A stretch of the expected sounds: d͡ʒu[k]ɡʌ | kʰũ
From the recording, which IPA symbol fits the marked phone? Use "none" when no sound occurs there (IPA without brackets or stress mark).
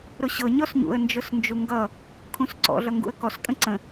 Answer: ŋ